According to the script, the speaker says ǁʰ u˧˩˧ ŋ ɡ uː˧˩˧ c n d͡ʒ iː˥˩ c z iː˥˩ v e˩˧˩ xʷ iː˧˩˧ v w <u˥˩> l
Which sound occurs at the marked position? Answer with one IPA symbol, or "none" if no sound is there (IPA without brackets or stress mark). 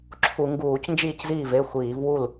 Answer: u˥˩